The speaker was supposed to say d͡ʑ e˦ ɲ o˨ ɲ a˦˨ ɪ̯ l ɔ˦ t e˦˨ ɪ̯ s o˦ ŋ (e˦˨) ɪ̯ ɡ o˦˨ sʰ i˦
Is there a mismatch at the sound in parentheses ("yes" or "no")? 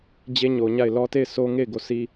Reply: no